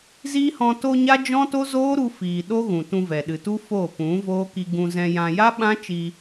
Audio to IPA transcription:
z i˦ h ɔ̃˧ t o˧ ɲ a˦ d͡ʒ ɔ̃˦ t o˦ z oː˦ ɾ u˧ f iː˨ ɗ o˦ ɣ ũ˨ t ũ˧ v ɛ˨ ɗ ɨ˨ t u˦ f o˦˨ p ũ˨˦ v oː˦ k i˧ ɡ ũ˧ z ɛ̃˧ j ã˧ j a˦ ɓ ã˦ t͡ʃ i˧

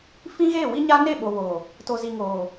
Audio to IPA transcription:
f ĩ˦ ɣ eː˦˨ w i˦ ɲ a˦ n e˦˨ ɓ o˨ β oː˨ | t o˨ z i˨ ŋ oː˨

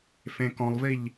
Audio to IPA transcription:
f ẽ k ɔ̃ lˠ v i ʎ

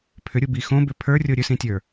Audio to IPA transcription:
pʰ ʏ ɾʲ u b i x õ b ʏ pʰ ə˞ rʲ o ɾʲ ɵ s ĩ tʲ ə˞

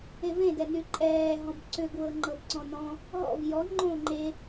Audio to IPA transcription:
e v ẽ d ɛ n y ǃʼ ɛː ɦ ɔ̃ b ǀ ʏ ɡ w ɤ ŋ͡ǃ ɤ b ǀ ɔ̃ n ɔ̃ | ɦ ɔ̰ v j ɔ ŋ͡ǃ õː ŋ͡ǃ e

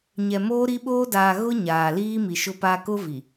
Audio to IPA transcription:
ɲ ɛ˨ m oː˦ ɾ i˦ ɓ oː˦ d aː˨ ɣ ʊ˦ ɲ aː˨ l iː˦ m i˨ ʃ ʊ˦ p a˦ k ʊ˦ v i˨

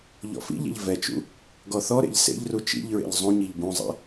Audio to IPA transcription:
ʎ ɔ̰ f ḭ ʎ ɛ̰ ʎ v ɛ t͡ʃ ṵ | ɡ ɔ θ ɔ ɾ ḛ ʎ s ḛ ʎ r u t͡ʃ ḭ ʎ ɹ ḛ ʎ zˤ ũ ɲ i ʎ b ũ zˤ ɛ̰

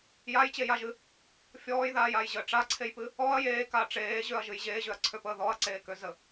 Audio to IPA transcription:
j a j t͡ɕ e j a ʒ ɨ | fʲ ɔː j ð aː j a j ʑ əː ʈ͡ʂ a ǀʰ e j p ɨ | ɔ ɐ̯ j eː k a ʈ͡ʂ eː ʑ ø ɐ̯ ʒ ɨ j ʑ eː ʑ ø ɐ̯ ǀʰ ø p əː ð ɔ ɐ̯ ǀ eː k ø z ə

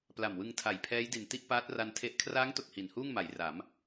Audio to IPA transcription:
p l a˨˩ m w ɯ˧ ŋ tʰ a˨˩ j pʰ ɛː˦˥ j d i˨˩ n t i˥˩ ʔ p aː˦˥ t̚ r a˧ n tʰ e˦˥ ʔ kʰ r aː˦˥ ŋ t o˨˩ k̚ h i˨˩ n h uː˥˩ ŋ m a˩˦ j r a˩˦ m

